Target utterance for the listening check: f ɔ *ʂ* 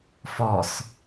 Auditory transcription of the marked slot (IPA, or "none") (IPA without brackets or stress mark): s